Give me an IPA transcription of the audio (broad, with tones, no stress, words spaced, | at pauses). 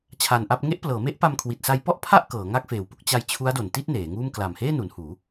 t͡ɕʰa˧nʔa˥˩p̚ ŋe˦˥ʔplɤː˩˦me˦˥ʔpa˧m kʰwi˨˩t̚sa˧jpɔ˥˩ʔ pʰa˥˩ʔ kɤː˩˦ŋa˥˩k̚feː˨˩wpu˥˩k̚ t͡ɕa˧j t͡ɕʰu˦˥a̯do˨˩nti˥˩t̚ neː˩˦ŋuː˥˩m kla˨˩mheː˥˩nu˩˦n huː˩˦